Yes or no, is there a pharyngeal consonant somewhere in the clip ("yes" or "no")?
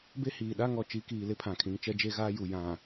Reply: no